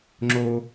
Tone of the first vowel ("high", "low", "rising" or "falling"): high